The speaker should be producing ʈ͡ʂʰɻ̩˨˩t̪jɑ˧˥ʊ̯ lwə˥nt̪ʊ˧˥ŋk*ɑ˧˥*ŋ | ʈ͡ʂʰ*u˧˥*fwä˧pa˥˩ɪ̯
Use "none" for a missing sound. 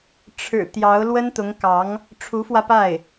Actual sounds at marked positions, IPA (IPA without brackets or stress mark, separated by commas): ɑ˧˥, u˧˥